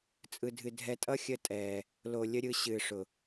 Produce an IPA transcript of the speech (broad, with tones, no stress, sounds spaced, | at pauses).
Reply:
t͡sʼ ɯ˧ dʱ ɨ˧ dʱ ɛ˧ tʼ ʌ˦ xʲ ə˧ tʼ ɛː˨ | l o˧ lʲ ə˦ ɾʲ ɯ˧ ɕ ɨː˨ ʂ ʊ˨